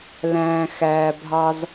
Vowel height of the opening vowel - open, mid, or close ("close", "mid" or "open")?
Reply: open